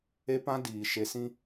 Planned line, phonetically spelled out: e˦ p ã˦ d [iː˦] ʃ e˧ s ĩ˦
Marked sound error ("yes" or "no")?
yes